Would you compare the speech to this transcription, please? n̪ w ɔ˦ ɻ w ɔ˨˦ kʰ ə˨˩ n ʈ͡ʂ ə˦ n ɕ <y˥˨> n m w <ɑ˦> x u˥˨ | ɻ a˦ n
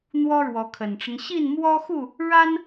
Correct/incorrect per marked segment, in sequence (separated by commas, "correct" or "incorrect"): incorrect, incorrect